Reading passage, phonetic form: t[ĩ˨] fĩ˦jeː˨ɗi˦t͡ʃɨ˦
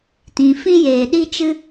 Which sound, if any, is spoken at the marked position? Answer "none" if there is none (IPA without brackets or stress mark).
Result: ĩ˨